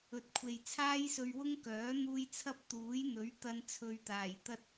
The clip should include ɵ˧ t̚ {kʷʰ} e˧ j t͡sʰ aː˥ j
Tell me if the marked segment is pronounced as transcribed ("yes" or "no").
yes